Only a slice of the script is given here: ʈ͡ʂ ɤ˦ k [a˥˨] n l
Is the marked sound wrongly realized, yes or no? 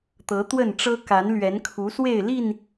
yes